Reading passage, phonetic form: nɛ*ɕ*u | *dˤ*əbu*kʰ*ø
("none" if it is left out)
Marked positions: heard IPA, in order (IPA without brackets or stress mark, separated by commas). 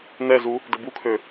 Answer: z, d, kʰ